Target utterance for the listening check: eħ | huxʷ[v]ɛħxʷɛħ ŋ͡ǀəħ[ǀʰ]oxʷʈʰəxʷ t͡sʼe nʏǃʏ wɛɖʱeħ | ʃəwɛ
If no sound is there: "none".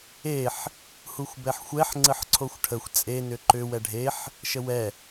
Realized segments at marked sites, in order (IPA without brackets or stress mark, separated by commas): b, ǀʰ